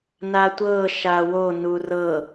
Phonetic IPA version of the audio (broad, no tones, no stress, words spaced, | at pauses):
natʷɤ ʃawo nurɤ